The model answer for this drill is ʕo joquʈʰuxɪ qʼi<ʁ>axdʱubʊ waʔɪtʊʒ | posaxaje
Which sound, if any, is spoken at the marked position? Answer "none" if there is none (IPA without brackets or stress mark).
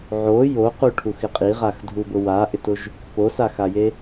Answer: ʁ